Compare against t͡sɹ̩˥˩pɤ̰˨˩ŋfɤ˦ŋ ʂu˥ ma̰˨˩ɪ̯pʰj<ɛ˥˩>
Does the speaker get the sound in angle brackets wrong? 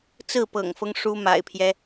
yes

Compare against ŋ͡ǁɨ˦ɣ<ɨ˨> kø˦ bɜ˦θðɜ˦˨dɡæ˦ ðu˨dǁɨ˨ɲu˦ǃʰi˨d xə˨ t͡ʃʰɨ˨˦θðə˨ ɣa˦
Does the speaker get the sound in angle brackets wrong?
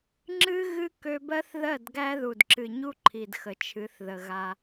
yes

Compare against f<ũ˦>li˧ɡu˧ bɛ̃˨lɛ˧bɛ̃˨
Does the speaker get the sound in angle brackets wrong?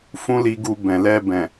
no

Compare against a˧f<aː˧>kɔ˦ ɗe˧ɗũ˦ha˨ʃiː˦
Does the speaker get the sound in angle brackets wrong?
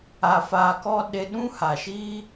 no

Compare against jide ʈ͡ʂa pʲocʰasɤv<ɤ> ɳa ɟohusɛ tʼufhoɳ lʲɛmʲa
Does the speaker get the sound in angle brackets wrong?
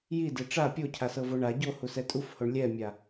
yes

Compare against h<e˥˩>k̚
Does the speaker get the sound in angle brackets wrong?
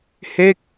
no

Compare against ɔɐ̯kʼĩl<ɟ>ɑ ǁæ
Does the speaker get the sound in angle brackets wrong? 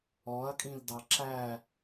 yes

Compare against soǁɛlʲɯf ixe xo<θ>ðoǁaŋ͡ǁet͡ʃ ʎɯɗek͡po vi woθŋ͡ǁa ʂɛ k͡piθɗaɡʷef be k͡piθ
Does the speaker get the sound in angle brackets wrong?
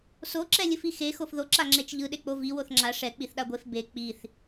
yes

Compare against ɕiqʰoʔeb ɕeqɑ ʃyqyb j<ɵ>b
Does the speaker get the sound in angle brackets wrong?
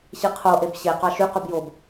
yes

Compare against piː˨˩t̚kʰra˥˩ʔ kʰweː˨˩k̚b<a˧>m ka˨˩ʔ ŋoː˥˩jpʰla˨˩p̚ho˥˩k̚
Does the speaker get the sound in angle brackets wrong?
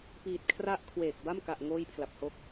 yes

